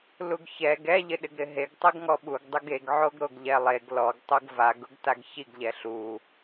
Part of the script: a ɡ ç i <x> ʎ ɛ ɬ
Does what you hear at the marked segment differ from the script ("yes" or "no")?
yes